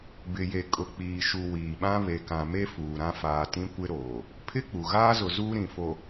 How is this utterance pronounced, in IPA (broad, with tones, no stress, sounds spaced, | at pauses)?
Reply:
b ɪ˨ j e˨ kʼ ʊ˨ k͡p iː˨ ʃ u˨ w iː˨ ɓ ã˦ β e˨ k ã˨ m e˦ f uː˨ ɾ ã˦ f aː˨ t ĩ˦ kʷ ɪ˦ ɾ oː˨ | pʰ ɪ˦ k͡p u˨ ɣ aː˦ z ʊ˨ z uː˦ ɾ ĩ˨ f o˨